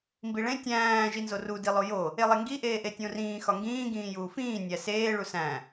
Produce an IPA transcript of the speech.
m b i ɭ ẽ tʲ æ̃ː ʒ i n z o r u d i lˠ o j o | e lˠ e ŋ ɡ i ʔ eː ʔ e tʲ õ r ĩː x ɒ ŋ ɡ ĩː ɡ ĩː j uː f ĩː nʲ æ s eː ɭ u s æ̃

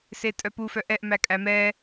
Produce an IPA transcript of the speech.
s e tʼ œ p u f œ ʔ ɛ ʔ m æ kʼ æ m ɛ

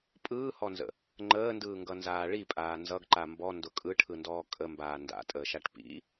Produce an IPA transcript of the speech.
pʼ ɯː h ɔ n z ə̰ | ŋ͡ǃ əː n d ɯː ŋ ɡ ʌ n z aː ɭ i pʼ aː n z ʌ ɡ ǃ a m b ɔ n d ʊ kʼ ɯ ʈʰ ɯ n d ɔː kʼ ə m b aː n d a̰ tʼ əː ʃ a ʈ p ḭ

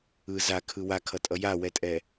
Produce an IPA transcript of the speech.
ɯ z a kʰ ɯ w a kʰ ʌ tʼ ʌ j a w ɛ tʼ ɛ

